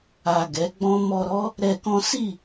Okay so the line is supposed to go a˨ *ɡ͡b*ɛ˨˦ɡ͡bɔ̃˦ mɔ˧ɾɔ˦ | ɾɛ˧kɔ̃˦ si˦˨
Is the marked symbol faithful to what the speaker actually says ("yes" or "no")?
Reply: no